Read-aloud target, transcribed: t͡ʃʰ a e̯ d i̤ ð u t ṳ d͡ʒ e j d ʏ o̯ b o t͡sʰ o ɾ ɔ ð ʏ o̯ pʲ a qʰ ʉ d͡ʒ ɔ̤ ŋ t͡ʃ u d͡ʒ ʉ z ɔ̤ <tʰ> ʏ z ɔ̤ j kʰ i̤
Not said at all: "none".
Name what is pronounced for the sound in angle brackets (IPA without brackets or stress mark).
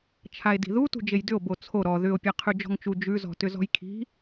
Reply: t